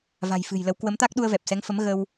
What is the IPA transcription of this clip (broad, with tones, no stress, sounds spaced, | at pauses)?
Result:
v a̤˨˩ j f ɨ̤˨˩ j l ə˨˦ w k w ə˨˦ m t̪ a˦˥ k̚ ɗ u˧ ə̯ v ɛ˨˩ p̚ s ɛ˨˦ ŋ f ə˨˦ m ɣ ə˧ w